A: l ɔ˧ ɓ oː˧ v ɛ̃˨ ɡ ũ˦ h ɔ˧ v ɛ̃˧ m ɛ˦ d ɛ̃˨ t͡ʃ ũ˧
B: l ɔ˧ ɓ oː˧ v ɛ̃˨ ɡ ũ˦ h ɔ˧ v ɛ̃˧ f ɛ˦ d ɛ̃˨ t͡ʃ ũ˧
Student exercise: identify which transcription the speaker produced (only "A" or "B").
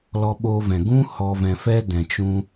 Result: B